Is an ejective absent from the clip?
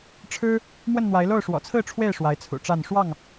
yes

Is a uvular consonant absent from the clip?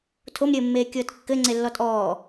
yes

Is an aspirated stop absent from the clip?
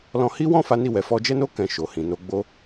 yes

